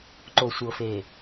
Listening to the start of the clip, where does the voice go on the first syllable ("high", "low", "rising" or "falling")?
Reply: low